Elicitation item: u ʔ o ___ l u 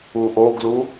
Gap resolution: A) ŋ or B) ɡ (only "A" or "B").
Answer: B